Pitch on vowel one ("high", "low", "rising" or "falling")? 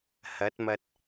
rising